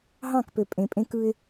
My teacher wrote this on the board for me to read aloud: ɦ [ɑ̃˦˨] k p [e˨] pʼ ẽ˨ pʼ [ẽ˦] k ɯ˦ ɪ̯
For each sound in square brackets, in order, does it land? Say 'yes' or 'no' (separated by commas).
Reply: yes, no, yes